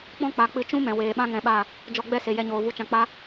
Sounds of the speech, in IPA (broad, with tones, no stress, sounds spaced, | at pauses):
k͡p ɔ̃˦ k͡p a˨˦ k͡p ɨ˧ t͡ʃ ũ˦ m ɛ̃˨ w eː˨ ɓ ã˦ ŋ ɛ̃˧ ɓ a˦˨ | d͡ʒ ɔ˧ ɡ͡b ɛ˦˨ s e˨ j ɛ˧ ɲ oː˨ v u˧ t͡ʃ ã˧ k͡p a˦